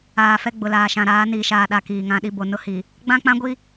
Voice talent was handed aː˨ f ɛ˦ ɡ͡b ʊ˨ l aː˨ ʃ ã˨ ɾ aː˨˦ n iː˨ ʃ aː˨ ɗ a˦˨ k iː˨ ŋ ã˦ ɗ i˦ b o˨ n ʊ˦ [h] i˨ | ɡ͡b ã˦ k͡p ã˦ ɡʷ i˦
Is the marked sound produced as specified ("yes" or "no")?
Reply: yes